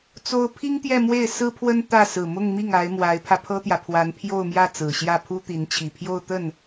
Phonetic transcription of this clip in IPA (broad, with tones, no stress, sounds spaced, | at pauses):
t͡s o˥ ʊ̯ pʰ i˥ ŋ t̪ j ɛ˥˧ m w e˥˩ ɪ̯ s ɹ̩˥ pʰ w ə˥ n t̪ ä˥˩ s ɹ̩˨˩ m ʊ˥˧ ŋ m i˥˩ ŋ a˧˥ ɪ̯ m w a˧˥ ɪ̯ pʰ ä˧ pʰ ɤ˥ t̪ j ä˨ pʰ w a˧˥ n pʰ j o˥˧ ʊ̯ m j ä˥˩ t͡s ɹ̩˨˩ ɕ j ä˥˩ pʰ u˥ t̪ i˧˥ n t͡ɕʰ i˨˩ pʰ j o˥˧ ʊ̯ t̪ ə˥˩ n